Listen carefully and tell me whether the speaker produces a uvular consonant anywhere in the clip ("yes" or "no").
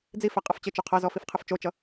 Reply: yes